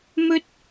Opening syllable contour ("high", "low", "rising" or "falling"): high